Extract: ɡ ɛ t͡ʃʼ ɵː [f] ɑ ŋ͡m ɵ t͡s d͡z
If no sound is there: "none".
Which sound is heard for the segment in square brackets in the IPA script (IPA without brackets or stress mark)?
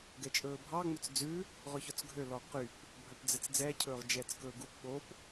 bʱ